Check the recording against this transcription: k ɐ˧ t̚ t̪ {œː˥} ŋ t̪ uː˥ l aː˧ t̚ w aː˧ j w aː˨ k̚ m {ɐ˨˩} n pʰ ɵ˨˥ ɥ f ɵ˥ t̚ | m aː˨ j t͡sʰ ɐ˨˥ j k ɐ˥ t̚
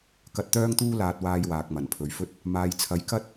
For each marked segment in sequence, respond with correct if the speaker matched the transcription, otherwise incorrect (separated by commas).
correct, correct